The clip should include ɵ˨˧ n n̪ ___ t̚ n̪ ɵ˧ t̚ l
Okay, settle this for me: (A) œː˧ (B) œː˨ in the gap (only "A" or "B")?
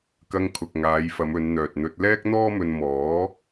B